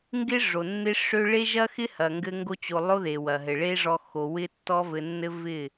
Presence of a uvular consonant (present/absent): absent